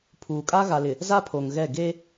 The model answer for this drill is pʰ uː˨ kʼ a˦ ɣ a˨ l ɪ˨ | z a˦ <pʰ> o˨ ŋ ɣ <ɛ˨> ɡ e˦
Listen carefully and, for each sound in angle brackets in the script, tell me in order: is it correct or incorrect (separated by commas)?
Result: correct, incorrect